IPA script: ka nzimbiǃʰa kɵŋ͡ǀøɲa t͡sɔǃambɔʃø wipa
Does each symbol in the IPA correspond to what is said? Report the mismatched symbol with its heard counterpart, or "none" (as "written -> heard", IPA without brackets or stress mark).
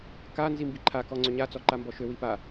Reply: ɵ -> ɔ